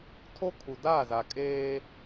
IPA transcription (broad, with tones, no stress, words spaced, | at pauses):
tʰo˦ kʰu˨daː˦˨za˨ kʼeː˦